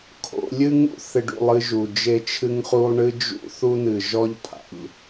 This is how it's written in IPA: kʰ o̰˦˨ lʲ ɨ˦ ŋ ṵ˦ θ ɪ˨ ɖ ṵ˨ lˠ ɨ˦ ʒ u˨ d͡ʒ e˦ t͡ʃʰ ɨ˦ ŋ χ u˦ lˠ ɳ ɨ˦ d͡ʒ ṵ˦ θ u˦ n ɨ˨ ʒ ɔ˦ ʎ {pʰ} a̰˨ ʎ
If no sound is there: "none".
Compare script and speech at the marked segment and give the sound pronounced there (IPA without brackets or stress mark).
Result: pʰ